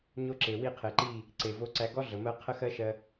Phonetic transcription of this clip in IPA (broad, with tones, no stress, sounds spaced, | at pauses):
ɲ o˦ ǁ e˨ w i˦˨ qʰ e˨ ǃ i˦˨ | ǀ e˨ v o˧ ǀ æ˧ ɡ ɔ˦ ɮ ə˨ m ɜ˦ qʰ ə˦ x ɜ˦ ʃ ɜ˧